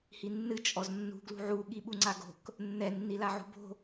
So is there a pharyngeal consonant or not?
yes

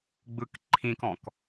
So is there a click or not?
yes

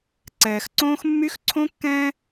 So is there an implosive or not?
no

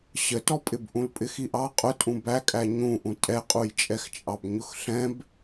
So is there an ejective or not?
yes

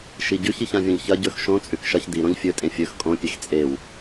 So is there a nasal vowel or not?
yes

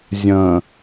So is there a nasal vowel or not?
yes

